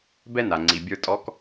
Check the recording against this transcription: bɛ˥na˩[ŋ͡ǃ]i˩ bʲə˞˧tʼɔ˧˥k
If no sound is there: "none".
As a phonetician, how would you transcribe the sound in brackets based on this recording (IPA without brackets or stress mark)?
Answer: ŋ͡ǀ